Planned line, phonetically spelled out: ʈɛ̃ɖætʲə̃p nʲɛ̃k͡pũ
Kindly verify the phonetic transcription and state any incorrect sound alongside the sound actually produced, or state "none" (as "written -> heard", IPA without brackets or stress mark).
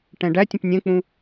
none